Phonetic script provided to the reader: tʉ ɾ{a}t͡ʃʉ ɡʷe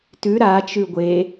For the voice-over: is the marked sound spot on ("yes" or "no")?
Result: yes